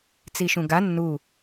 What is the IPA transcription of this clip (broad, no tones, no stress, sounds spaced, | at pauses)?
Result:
t͡s i ʃ ũ ɡ a nː u